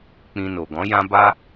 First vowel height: high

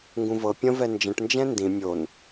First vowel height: high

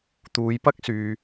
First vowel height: high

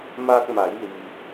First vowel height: low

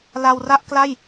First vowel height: low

